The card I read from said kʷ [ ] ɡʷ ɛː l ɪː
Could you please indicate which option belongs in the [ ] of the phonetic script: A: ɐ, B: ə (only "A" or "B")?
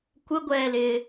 B